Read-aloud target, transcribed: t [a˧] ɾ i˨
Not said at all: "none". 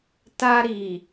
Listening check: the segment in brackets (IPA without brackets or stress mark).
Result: a˧